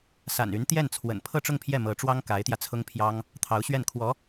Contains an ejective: no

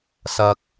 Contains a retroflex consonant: no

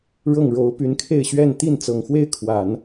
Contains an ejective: no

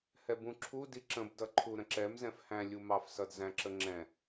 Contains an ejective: no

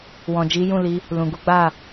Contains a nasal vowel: yes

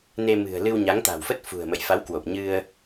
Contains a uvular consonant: no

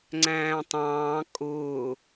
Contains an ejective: yes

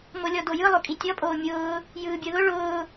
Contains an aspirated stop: no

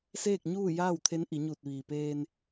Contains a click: no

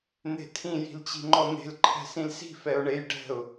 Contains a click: yes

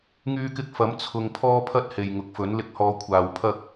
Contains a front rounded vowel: yes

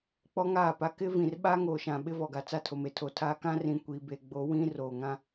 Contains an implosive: yes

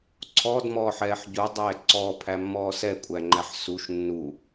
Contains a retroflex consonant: no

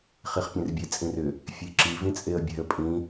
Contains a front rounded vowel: yes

